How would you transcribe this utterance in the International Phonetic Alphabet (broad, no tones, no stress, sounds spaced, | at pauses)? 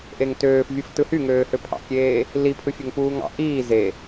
ʔ e ŋ t øː f vʲ ɯ f t ɯ h y ŋ øː h ø pʰ ɑ̰ kʲ eː | l i pʰ ɯ fʲ ø ŋ p uː ŋ ɑ̰ ʔ iː z e